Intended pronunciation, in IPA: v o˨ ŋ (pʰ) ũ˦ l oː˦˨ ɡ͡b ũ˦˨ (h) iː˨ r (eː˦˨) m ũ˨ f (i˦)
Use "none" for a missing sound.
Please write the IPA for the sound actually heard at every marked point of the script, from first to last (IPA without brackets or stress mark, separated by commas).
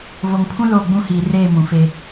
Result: pʰ, h, eː˦˨, e˦